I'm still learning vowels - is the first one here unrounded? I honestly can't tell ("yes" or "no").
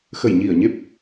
yes